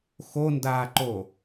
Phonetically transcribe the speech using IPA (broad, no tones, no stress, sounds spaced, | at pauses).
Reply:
x o n d aː ǃ o